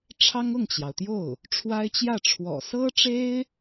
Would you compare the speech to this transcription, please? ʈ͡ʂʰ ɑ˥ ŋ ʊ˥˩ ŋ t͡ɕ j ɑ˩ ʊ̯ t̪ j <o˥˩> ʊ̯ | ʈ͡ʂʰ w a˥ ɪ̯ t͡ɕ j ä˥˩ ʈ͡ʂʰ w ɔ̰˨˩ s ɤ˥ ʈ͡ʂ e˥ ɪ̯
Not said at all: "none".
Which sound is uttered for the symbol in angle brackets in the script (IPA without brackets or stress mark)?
o˥˩